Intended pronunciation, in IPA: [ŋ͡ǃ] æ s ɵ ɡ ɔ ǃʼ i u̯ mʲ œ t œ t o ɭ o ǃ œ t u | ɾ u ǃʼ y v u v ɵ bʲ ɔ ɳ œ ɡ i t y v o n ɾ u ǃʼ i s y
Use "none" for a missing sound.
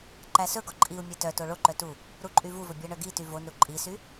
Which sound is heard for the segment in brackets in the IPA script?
ǃ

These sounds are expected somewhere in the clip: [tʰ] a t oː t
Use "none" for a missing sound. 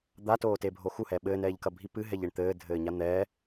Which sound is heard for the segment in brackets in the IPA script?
d̪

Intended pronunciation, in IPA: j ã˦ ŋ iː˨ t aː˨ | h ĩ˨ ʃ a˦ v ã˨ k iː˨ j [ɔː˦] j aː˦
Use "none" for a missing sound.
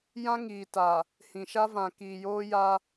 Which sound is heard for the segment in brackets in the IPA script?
oː˦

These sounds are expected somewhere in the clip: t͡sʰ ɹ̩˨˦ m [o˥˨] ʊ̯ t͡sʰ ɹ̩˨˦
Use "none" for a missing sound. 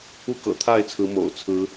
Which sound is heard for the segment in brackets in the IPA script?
o̰˨˩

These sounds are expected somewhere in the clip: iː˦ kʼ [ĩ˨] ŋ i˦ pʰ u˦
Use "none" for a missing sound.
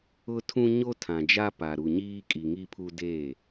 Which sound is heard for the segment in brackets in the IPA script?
i˨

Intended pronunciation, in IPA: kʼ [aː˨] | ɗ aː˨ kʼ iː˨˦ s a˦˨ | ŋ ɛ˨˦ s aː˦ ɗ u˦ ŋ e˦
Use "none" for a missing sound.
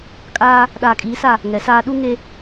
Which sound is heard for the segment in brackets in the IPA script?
aː˦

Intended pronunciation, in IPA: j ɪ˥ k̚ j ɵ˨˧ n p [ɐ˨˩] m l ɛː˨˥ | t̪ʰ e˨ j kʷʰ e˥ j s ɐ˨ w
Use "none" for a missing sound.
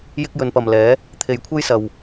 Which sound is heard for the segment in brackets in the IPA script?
ɐ˨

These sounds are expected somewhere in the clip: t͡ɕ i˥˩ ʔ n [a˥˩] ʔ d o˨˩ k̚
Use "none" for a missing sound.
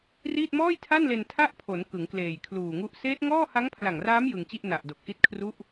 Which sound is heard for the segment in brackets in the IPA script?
a˨˩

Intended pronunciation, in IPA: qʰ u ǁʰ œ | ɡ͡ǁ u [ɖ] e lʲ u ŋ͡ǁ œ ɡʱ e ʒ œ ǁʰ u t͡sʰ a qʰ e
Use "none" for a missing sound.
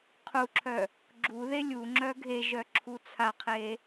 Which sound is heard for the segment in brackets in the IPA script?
ð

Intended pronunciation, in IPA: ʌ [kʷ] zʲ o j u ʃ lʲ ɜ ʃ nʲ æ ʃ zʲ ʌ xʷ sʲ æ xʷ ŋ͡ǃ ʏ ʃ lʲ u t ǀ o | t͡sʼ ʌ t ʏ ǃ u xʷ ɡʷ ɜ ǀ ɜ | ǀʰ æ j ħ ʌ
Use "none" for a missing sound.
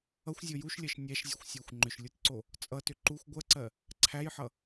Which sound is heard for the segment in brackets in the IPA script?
xʷ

